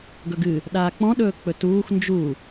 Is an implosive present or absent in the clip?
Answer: present